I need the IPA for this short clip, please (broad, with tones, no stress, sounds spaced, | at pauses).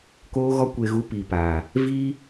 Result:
k oː˧ ɣ ɔ˧ kʷ e˨ ɣ u˨˦ p i˨ p aː˨ | v i˦